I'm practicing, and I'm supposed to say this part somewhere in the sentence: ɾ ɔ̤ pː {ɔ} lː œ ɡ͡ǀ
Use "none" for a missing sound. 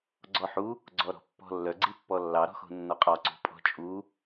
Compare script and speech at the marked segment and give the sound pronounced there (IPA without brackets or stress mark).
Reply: ɔ̤